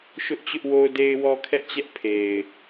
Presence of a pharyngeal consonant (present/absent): absent